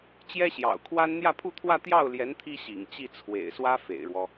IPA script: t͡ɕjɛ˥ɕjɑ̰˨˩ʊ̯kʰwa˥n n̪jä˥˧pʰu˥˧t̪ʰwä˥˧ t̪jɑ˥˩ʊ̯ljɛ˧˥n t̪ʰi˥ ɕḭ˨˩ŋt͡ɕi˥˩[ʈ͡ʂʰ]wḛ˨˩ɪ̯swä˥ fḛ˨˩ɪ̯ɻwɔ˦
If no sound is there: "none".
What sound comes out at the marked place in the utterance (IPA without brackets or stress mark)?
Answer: t͡sʰ